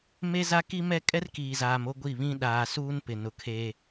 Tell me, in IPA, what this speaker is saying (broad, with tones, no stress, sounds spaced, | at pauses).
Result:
m e˦ z a˦ k i˦ m ɛ˦ kʼ ɛ˦ r k iː˨ z aː˨ m o˦ ɡʷ i˦˨ β ĩ˦ ɗ aː˨ s uː˦ n p ɪ˨ n ʊ˨ kʰ eː˦